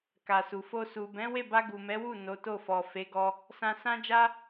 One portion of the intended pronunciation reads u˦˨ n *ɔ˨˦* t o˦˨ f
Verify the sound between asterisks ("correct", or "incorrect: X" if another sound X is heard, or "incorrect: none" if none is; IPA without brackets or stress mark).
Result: incorrect: o˨˦